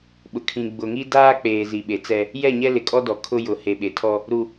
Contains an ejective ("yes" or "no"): yes